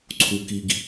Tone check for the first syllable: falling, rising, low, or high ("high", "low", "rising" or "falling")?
low